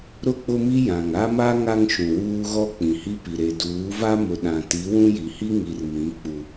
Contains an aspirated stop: no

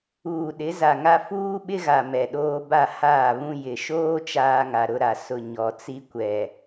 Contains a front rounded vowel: no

